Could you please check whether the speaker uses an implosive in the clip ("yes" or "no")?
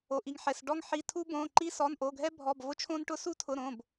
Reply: no